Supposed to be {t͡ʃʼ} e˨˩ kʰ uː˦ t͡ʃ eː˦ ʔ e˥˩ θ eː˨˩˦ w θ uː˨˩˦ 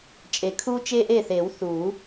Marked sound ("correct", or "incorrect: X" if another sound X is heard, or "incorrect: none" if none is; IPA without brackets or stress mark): correct